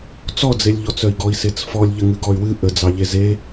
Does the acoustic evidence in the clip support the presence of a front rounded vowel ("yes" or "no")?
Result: yes